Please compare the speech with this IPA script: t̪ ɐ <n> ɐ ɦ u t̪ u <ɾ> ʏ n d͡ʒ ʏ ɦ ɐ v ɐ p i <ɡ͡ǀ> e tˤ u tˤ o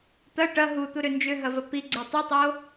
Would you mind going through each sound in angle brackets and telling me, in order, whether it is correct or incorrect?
incorrect, correct, correct

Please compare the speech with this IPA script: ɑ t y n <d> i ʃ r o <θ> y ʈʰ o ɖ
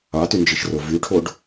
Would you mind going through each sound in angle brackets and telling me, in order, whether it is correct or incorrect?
incorrect, incorrect

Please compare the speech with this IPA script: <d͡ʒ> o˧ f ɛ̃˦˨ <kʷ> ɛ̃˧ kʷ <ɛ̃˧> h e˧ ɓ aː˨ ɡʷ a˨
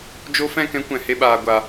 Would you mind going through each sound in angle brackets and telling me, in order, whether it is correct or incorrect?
correct, incorrect, incorrect

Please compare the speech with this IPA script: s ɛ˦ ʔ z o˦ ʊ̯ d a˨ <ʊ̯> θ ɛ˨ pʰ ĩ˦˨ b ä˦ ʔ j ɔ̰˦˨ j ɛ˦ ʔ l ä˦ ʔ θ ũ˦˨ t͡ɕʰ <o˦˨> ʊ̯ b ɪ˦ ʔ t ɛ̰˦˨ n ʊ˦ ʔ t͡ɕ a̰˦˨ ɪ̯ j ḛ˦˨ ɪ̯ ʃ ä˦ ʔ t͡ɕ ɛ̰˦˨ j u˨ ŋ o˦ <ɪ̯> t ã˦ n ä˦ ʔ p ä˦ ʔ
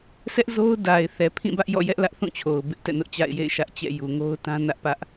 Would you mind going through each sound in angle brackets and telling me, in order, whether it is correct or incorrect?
incorrect, incorrect, incorrect

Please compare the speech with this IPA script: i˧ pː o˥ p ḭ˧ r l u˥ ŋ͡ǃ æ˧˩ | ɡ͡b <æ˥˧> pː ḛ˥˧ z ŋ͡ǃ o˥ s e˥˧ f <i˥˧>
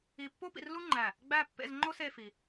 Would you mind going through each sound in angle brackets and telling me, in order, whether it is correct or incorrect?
correct, incorrect

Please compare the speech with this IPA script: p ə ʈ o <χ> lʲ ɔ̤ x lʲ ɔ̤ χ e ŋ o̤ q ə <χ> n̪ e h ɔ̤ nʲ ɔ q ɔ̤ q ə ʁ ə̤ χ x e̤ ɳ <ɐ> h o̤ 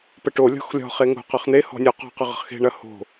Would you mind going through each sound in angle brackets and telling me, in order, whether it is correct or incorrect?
incorrect, correct, correct

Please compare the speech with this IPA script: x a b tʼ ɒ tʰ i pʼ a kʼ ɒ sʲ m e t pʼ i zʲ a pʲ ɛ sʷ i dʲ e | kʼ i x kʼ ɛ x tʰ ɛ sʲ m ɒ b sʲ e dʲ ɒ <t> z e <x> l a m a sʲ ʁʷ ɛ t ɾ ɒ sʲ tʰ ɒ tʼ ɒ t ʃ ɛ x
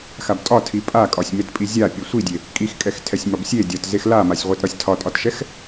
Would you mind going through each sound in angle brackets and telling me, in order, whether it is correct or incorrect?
correct, correct

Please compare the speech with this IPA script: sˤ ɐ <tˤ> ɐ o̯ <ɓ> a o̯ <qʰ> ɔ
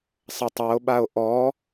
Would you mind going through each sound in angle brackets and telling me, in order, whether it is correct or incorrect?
correct, correct, incorrect

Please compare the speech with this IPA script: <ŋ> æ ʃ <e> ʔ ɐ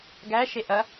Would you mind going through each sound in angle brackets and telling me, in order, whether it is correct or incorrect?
incorrect, correct

